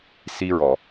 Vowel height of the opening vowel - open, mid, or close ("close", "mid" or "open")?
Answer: close